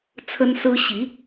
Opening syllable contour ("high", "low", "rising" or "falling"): high